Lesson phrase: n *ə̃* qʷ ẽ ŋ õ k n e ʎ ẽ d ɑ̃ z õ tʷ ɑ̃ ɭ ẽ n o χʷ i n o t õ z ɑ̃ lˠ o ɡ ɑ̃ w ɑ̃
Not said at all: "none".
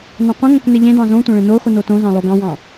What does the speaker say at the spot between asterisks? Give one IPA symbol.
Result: ɑ̃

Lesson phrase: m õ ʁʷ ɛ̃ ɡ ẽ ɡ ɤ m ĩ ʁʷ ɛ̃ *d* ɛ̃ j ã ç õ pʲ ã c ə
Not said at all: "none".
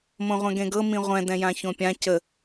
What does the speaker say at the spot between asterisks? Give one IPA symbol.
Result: d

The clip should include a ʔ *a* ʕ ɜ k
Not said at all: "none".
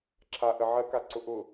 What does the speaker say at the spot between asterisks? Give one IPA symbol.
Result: ə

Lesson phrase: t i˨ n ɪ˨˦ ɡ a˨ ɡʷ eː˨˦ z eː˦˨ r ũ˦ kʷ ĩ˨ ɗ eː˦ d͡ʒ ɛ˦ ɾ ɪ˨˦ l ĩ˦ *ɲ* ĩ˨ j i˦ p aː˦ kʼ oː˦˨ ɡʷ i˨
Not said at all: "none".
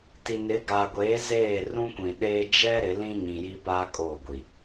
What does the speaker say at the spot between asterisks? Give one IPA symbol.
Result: ɲ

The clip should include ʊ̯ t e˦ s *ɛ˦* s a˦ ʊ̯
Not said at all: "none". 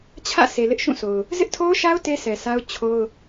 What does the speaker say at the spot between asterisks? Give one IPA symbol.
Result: ɛ˨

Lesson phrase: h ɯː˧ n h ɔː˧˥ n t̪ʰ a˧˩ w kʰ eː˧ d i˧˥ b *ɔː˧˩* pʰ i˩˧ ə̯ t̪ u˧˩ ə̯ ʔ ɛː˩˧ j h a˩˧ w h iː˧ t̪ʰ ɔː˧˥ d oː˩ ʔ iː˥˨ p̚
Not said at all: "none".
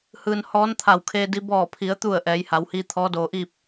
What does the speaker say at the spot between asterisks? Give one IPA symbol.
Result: ɔː˧˩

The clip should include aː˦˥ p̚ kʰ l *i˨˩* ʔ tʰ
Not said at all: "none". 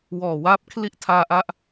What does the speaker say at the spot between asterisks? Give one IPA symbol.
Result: i˥˩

